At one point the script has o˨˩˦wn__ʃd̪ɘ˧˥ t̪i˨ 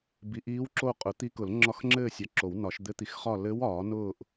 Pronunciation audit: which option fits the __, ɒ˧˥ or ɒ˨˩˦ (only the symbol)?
ɒ˨˩˦